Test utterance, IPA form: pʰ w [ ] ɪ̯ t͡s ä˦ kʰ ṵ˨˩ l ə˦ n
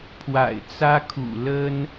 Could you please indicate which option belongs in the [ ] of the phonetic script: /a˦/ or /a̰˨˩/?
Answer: a̰˨˩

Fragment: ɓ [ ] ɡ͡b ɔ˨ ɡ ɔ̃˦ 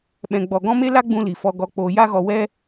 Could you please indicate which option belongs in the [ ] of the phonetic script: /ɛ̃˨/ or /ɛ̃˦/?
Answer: ɛ̃˨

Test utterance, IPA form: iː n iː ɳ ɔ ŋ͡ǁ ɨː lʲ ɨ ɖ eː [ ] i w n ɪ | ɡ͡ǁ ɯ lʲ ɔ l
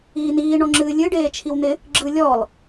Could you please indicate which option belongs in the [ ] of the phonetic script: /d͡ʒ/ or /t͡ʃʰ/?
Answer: t͡ʃʰ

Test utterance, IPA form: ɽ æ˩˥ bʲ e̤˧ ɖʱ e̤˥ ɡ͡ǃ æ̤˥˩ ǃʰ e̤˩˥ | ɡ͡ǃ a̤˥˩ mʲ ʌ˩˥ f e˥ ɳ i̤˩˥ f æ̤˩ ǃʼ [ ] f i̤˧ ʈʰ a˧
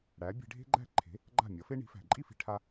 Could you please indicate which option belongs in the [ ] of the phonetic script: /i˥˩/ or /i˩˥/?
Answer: i˥˩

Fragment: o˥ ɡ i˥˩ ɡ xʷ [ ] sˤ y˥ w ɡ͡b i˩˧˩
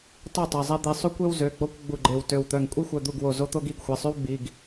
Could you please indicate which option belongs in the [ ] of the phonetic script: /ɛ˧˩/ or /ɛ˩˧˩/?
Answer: ɛ˩˧˩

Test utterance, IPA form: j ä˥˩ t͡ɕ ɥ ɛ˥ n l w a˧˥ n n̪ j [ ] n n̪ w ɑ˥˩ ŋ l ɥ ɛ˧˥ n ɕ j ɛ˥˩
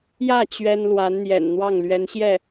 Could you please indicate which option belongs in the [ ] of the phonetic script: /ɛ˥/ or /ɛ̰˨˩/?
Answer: ɛ̰˨˩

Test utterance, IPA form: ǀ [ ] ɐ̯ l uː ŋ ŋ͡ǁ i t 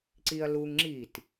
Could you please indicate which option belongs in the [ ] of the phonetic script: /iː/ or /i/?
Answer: i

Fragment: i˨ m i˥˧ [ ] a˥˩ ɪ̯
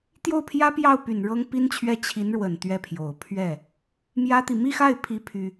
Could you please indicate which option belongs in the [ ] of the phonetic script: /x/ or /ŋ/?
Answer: x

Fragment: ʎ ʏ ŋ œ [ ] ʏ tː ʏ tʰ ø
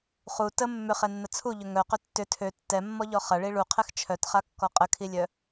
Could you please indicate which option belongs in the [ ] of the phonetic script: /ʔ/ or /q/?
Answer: q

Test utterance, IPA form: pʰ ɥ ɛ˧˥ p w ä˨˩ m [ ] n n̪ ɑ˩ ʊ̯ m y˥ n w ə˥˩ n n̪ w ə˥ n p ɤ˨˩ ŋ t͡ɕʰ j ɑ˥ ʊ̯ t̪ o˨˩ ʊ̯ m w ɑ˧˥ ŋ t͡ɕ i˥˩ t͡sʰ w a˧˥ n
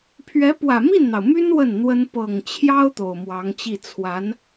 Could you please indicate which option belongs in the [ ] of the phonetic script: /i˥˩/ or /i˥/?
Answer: i˥˩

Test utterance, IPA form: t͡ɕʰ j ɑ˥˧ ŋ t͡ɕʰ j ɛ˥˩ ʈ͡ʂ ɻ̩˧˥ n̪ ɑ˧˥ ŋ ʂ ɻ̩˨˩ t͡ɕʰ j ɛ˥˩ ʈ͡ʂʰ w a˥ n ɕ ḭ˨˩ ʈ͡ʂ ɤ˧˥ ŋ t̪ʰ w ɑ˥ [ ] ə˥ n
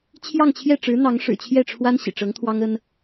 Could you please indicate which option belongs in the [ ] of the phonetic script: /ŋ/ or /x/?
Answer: ŋ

